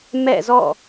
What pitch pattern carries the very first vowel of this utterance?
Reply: falling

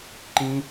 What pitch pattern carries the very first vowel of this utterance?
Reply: high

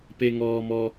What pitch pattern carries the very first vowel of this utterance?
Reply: low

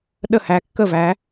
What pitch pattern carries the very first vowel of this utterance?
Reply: falling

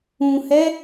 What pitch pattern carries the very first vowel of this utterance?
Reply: low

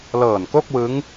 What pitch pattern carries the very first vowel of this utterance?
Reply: low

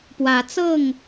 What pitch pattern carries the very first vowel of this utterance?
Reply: rising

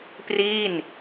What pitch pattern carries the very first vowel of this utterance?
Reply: falling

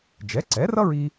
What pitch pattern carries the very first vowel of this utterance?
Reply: rising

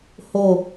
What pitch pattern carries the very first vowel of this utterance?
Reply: falling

